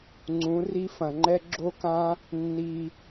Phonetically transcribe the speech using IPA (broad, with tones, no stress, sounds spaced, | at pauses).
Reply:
ŋ͡ǀ ũ˨˦ r i˦ f ɐ̃˨ ŋ͡ǃ ɛ˦ ɡ͡ǁ o˦ k ã˦ | nː i˧